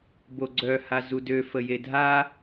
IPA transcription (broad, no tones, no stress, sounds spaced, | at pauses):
b o ɡ͡ǀ œ h a z u d ø f ə j e dʱ a